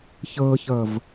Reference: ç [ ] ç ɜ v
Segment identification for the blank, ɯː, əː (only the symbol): əː